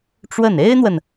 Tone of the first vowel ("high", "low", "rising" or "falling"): falling